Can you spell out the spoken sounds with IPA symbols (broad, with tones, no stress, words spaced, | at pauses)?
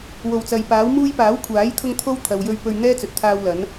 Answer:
wo˨˩wt͡sɐ˨jpaː˨˥wmuː˥j paː˨˥wkʷʰaː˨˥jt̪ʰʊ˧ŋ t̪ʰo˥w t̪ʰɐ˨wjɵ˧ɥ pɵ˧ɥ n̪ɛː˥t͡sɵ˨t̚t̪ʰaː˧w lɐ˨˥n